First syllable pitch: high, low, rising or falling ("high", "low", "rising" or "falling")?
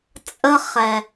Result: high